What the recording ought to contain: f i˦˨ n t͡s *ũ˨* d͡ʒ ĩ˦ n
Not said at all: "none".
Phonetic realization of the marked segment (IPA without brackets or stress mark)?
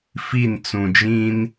ũ˨